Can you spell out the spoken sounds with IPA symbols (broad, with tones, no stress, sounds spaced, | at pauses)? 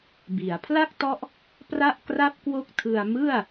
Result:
b i˩˦ a̯ pʰ l a˥˩ k̚ t ɔ˦˥ ʔ | p r a˥˩ ʔ k r a˥˩ p̚ k w o˦˥ k̚ tʰ ɯ˧ a̯ m ɯ˥˩ a̯